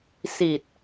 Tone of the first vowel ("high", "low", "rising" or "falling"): low